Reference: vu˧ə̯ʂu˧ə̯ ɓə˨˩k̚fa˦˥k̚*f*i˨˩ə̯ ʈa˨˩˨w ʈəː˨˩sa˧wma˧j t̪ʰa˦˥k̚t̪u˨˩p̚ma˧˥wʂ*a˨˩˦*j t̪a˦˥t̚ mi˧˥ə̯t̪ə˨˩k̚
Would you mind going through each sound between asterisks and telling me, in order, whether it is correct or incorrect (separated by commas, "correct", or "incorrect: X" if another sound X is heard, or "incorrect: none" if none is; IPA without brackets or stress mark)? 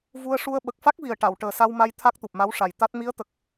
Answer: incorrect: v, incorrect: a˨˩